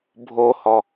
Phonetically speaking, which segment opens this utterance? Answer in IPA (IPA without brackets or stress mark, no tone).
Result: bʱ